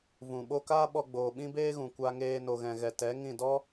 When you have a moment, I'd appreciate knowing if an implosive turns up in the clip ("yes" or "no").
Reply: yes